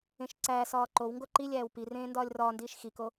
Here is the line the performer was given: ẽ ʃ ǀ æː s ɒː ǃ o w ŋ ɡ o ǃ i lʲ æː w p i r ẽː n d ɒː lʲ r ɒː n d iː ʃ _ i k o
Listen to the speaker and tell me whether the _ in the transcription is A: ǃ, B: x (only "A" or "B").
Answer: B